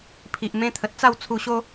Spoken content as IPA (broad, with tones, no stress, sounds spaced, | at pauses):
pʰ i˨ ʔ m ẽ˦ t̪ʰ ə˨ t̚ t͡s a˥˧ w t͡sʰ u˧ ɕ o˦